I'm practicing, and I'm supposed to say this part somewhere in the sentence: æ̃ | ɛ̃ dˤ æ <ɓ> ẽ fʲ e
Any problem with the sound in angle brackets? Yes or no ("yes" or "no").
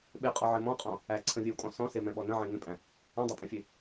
yes